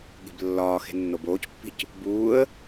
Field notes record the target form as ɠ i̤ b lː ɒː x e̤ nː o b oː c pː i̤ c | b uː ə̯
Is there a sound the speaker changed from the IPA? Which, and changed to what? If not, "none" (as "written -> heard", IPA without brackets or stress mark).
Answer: none